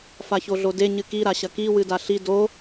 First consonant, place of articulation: labial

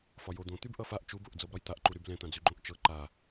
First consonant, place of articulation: labial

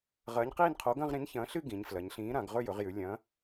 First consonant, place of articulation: uvular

